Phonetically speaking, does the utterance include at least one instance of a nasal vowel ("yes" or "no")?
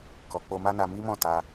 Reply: yes